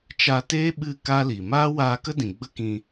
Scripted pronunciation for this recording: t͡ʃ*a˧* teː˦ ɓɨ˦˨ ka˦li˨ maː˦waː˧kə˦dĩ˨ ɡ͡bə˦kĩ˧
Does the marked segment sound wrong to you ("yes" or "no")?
no